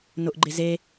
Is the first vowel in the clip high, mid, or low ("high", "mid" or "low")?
high